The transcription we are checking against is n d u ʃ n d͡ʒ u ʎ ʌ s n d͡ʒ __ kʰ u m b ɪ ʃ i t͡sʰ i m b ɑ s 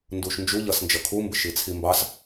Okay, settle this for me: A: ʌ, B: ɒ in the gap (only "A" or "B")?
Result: A